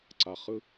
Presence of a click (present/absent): present